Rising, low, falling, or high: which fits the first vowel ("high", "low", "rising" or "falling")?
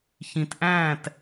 low